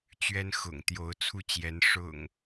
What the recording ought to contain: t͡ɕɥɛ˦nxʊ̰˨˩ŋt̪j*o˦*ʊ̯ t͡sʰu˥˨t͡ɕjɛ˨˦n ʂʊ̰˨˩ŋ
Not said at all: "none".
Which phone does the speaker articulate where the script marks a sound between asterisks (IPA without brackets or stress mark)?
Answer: o˨˦